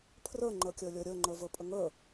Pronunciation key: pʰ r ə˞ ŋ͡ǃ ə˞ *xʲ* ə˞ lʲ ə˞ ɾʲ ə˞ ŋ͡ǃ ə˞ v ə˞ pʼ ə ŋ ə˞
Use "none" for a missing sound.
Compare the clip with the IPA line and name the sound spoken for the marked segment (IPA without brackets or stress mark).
kʲ